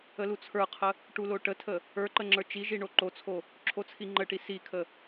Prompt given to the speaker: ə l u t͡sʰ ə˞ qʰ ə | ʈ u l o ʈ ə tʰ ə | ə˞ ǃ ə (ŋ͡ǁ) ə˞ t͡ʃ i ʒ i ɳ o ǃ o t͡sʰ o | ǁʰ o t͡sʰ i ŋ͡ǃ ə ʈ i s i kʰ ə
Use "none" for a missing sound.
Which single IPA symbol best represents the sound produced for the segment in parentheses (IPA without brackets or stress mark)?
ŋ͡ǁ